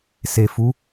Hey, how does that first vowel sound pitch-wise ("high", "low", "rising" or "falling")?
low